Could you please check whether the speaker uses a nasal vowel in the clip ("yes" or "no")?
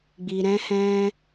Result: yes